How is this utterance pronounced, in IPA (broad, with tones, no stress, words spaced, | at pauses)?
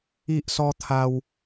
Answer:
i˦ʔsɔ˦t̪ʰa˦w